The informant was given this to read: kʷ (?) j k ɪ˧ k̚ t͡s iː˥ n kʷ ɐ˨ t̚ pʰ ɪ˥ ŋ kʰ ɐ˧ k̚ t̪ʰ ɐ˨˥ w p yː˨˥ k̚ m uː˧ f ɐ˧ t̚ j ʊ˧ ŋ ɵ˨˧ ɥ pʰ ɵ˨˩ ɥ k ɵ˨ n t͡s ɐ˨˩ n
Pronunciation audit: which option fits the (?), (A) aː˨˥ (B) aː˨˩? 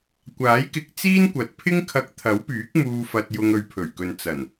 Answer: A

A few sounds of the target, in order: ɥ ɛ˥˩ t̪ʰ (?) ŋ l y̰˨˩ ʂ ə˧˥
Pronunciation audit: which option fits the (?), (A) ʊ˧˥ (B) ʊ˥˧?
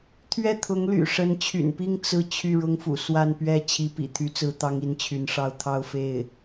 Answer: A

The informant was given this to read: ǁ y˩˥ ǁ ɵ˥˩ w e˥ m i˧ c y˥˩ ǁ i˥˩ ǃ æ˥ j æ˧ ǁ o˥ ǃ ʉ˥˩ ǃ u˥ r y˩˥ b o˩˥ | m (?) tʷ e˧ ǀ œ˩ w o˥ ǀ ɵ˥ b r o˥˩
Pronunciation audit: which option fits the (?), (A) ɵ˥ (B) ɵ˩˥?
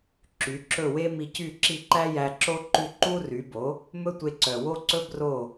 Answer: A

